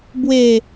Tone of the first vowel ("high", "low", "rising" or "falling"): low